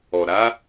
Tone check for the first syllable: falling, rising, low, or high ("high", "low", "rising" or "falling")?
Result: low